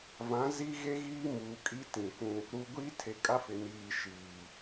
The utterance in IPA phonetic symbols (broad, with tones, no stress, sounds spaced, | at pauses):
v ã˨˦ z i˦ ɣ e˦ ɣ iː˦ m uː˨ kʼ i˦ t ĩ˨ kʷ ũ˦ | ɾ uː˨ ɡʷ iː˦ tʰ e˨ kʼ a˦ f ɪ˨ n iː˨ ʃ iː˨